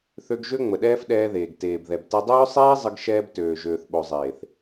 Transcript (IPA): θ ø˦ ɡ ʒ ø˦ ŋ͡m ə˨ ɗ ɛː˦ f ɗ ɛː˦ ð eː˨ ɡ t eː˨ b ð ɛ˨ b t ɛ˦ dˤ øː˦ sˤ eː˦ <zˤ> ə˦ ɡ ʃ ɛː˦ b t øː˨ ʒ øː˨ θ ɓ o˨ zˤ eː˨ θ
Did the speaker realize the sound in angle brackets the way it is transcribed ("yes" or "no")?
yes